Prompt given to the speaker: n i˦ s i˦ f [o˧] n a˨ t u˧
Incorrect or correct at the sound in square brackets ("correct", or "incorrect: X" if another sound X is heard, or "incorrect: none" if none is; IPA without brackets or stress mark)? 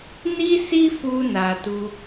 incorrect: u˧